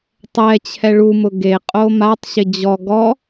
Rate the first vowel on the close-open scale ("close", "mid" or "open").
mid